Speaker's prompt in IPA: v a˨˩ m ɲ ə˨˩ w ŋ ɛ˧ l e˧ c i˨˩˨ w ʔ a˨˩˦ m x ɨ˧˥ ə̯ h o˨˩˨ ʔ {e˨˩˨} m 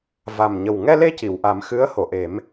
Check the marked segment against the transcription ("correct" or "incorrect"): incorrect